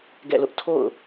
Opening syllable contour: falling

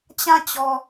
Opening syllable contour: falling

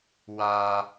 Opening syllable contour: high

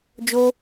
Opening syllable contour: high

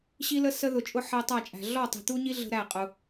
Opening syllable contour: high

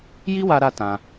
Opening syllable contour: high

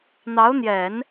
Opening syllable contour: rising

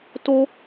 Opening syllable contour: high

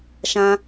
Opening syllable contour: high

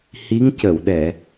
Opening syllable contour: rising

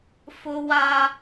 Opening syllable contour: high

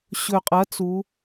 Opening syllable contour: low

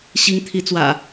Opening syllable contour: rising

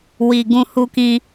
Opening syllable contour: low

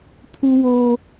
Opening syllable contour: high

